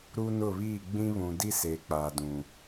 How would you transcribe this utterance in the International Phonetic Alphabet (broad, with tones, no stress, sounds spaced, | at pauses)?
ɾ uː˦ n ʊ˦˨ β iː˦˨ ɡ͡b ĩ˦ β ũ˨ d i˦ s eː˨ k͡p aː˨ d ũ˨